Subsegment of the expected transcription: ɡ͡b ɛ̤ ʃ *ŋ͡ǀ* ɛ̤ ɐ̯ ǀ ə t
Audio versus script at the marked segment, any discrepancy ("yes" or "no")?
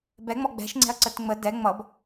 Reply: no